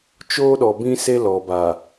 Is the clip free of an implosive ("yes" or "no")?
no